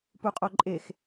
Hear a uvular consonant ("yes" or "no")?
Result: yes